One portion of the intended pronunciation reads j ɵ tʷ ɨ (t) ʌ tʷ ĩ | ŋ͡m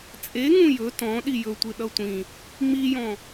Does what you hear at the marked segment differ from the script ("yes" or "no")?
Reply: yes